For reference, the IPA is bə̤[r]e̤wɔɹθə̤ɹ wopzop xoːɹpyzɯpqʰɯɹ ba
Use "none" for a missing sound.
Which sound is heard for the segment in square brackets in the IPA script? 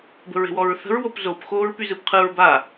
ɹ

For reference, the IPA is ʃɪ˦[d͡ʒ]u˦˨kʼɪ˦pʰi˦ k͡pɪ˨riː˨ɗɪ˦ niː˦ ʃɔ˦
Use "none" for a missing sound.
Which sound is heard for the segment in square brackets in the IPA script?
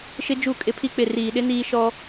d͡ʒ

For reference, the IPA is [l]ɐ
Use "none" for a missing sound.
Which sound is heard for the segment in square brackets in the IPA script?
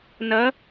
n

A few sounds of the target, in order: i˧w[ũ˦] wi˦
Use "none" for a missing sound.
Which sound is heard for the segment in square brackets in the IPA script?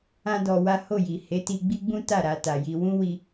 ũ˦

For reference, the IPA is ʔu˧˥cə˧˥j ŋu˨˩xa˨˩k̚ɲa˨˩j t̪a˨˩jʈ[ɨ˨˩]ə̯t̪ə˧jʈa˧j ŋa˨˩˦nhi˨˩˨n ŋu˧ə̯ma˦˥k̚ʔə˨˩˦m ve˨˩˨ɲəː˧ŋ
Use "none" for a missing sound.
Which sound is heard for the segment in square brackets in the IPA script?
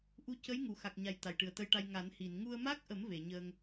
ɨ˨˩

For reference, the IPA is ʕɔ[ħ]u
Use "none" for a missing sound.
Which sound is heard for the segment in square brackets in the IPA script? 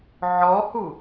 h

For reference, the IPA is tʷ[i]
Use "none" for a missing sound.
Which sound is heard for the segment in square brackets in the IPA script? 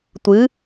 ɨ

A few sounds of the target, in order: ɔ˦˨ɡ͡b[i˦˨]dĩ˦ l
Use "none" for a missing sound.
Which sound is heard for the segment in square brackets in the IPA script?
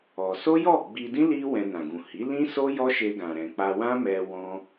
i˧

